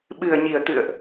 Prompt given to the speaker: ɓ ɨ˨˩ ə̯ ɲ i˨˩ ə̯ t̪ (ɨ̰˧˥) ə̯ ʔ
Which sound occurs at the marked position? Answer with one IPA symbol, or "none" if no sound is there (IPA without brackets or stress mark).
ɨ̰˧˨